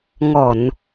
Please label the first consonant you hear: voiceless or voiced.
voiced